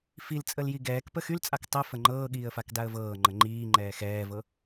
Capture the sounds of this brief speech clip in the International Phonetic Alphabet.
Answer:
filt͡sʼəl jiɡɛːkpə xylt͡sʼak tˤə fəŋ͡ǃɤːɠiːə̯ fakdaə̯vɤːŋ͡ǃə ŋ͡ǃiːŋ͡ǃɛː xɛːvɤ

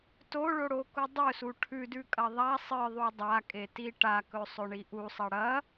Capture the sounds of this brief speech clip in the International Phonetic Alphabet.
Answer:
toɭoɽoku dˤɵsu ʈʰʉdʉkʼɐ ðˤa sˤɨðˤu dˤakʼeti ʈakɵsˤɵɳi ʔusˤɐ ɽɐ

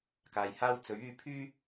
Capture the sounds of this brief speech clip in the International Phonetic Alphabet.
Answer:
kaː˨jhaː˥w t͡sɵ˨˥ɥyː˧ pʰyː˥

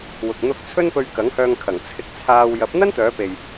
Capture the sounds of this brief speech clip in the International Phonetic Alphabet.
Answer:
wʊ˨k̚n̪ʊ˧k̚ t͡sʰɵ˥npɵ˧ɥ kɐ˨˥ŋhœː˧ŋkʰɐ˨˩ŋ t͡sʰɪ˧k̚t͡sʰaː˧w jɐ˨˥p̚n̪ɐ˥nt̪œː˨˧pe˨j

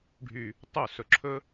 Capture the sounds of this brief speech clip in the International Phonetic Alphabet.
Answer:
ɖʱy˨ | tˤo˦˨ sɵ˨ǁʰɵ˦

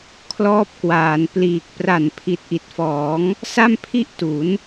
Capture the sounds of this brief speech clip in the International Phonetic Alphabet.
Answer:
kʰlɔː˦˥p̚kwaː˩˦npliː˨˩k̚ pra˨˩n pʰi˨˩t̚ʔi˨˩t̚fɔː˩˦ŋ | sa˥˩mpʰi˥˩ʔtu˩˦n

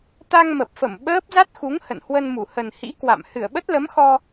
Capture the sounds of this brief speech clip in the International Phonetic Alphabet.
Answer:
t̪a˧ŋmə˨˩p̚fə˧˩m ɓəː˦˥p̚ za˦˥t̚xu˨˦ŋ hə̰˧˨nhwə˧nmu˧˩ hə˨˩nhḭ˧˥ kwa̰˧˨m hɨ˧˩ə̯ɓə˦˥t̚lə˨˦mxɔ˧

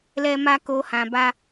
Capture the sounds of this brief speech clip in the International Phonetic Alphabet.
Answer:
lɛ˦ma˦ ko˦hã˧ba˦

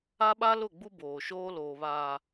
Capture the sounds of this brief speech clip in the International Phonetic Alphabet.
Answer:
a˦ɓa˦lʊ˦˨ɡ͡bu˦ boː˨ʃoː˦loː˨βaː˨

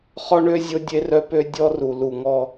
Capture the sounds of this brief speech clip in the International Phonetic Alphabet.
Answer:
χɔ˦ɳø˦ zʲo˦dʲe˦rœ˦pø˦ dʲɔ˦ru˨ lu˨ ŋɔ˦

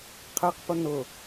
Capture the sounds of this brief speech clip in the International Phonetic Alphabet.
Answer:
qʰɛqpʊ nʊ

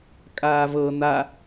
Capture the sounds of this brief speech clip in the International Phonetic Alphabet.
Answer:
kʼaːvɤ n̪a

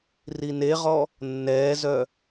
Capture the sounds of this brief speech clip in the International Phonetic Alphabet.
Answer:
rineʁɔ | nːɛːzœ

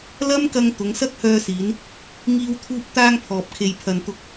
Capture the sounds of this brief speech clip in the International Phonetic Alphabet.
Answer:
lɐ˥mkɐ˧ŋ t̪ʊ˨˧ŋsɐ˥k̚hœː˧siː˨˧n | ŋiː˧wt̪ʰuː˧p̚t̪aː˧ŋ pʰɔː˨p̚kʰe˨jpʰɐ˨nt̪ʊ˧k̚

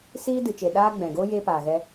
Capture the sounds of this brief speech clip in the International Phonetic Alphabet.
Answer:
siː˦dɨ˨t͡ʃe˨ ɗaː˦ ɡ͡bɛ̃˨ɡoː˦ jeː˦paː˨ɣɛ˦

